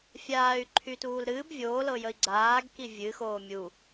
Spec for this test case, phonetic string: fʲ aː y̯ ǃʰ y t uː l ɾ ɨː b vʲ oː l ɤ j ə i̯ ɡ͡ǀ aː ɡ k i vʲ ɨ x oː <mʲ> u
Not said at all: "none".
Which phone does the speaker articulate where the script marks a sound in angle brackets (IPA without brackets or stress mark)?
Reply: mʲ